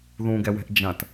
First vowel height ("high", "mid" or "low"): high